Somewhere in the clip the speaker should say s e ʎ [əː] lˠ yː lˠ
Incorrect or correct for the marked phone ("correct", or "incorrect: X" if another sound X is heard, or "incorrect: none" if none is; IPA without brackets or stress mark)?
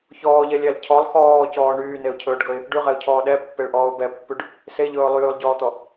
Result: incorrect: ɵː